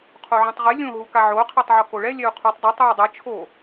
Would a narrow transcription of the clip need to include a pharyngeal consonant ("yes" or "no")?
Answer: yes